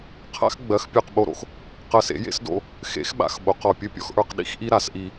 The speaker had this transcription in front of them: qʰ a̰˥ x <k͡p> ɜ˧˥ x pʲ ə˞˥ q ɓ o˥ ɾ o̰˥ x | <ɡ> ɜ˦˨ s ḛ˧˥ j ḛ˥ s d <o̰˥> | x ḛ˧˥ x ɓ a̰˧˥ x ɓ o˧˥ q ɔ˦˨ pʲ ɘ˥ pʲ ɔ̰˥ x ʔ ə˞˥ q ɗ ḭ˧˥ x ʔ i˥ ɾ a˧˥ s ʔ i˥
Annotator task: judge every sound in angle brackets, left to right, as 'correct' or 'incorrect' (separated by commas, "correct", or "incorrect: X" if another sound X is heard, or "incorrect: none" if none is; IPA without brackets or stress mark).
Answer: incorrect: ɡ͡b, incorrect: q, correct